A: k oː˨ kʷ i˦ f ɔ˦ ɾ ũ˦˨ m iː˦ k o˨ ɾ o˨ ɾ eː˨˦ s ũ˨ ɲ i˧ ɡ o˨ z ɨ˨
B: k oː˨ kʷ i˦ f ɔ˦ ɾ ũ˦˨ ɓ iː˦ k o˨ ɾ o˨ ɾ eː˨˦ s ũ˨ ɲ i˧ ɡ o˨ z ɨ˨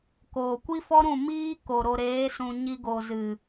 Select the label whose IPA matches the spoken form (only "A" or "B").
A